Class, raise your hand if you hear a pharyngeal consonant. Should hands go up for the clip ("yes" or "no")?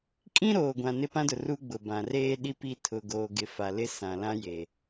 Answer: no